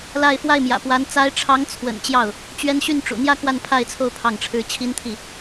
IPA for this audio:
la˥˧ɪ̯ fwa˥˩ɪ̯mjä̰˨˩pwa˧˥n t͡sa˧˥ɪ̯ʈ͡ʂʰɑ˧˥ŋt͡sʰwə̰˨˩n t͡ɕjɑ˥˩ʊ̯ | t͡ɕɥɛ˥n ɕy˥˩nʈ͡ʂṵ˨˩ n̪jä˥˧ kwa˥˧npʰa˥˧ɪ̯t͡sʰo˥˧ʊ̯ pʰɑ˥˩ŋʈ͡ʂʰɻ̩˥ t͡ɕʰi˥nt̪ʰi˥˩

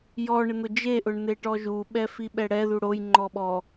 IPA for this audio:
jɔ ɳɪn̪ʊd͡ʒeʔʊɳ n̪eʈɔʒuɓɛ fiɓɛɽɛðu ɽojŋ͡ǃɔ ɓɔ

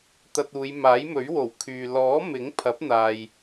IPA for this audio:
t̪ɐ˧t̚uː˨˧j maː˨˥jmɵ˨˥ɥwo˨˩w kʰyː˨ lɔː˨˥ mɪ˨˥ŋpʰɐ˨˥p̚n̪aː˨j

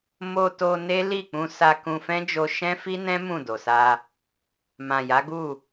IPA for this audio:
mo˧to˧ ne˦ li˦˨k͡pũ˧ sa˧kũ˧fɛ̃˦d͡ʒo˧ ʃɛ̃˦fi˦nɛ̃˦ mũ˦˨do˨sa˧ | mã˨ja˨˦ɡu˦˨

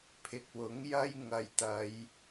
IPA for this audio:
pʰɪ˨k̚wʊ˨˥ŋ jɐ˥j ŋɐ˨jt̪ɐ˨˧j

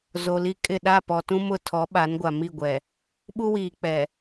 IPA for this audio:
zo˨li˦kʼɪ˦˨ ɗa˦˨pɔ˨tũ˦ mʊ˦ tʰɔ˨˦ɓa˨˦nɡʷa˨ mi˦˨ɡʷɛ˨ | ɓu˦wiː˨k͡pɛ˨

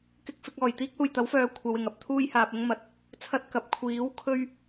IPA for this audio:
kɪ˧k̚fɪ˧k̚ɔː˨˩j t̪iː˥k̚huː˨˩jt̪ɐ˨˥wfœː˨ kʷʰɐ˨˧wɪ˨˩ŋ ɐ˨p̚t̪ʰuː˧j haː˨p̚ʊ˥ŋmɐ˨t̚ | t͡sʰɐ˧t̚ kɐ˨p̚ kʷʰiː˨˥w kʰɵ˥ɥ

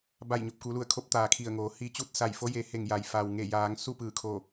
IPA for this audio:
ba˧˩jɲo˧˩p̚ku˩˧lu˧˩ə̯ kʰo˧p̚t̪aː˩kʰi˧˩ə̯ ŋoː˩˧hi˧˥t͡ɕu˥˨t̚ sa˧˩jfo˧˥je˩˧he˧˩ŋ ja˩j fa˩wŋe˧˩jaː˩˧ŋ su˥˨pɯː˧˩kʰo˧˩

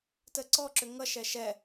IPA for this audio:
təǀɔǁʏ ŋʌʃɛ ʃɛ

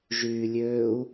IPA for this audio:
ʒyːlʲøːu̯

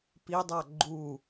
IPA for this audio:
pidˤa ɡ͡ǃu

